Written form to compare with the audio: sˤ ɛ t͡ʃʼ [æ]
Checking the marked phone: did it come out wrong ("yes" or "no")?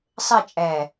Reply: no